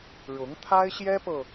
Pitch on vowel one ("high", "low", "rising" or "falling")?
rising